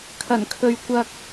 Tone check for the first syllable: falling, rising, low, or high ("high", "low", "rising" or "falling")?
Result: low